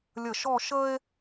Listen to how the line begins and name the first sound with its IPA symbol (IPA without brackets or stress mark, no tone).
lʲ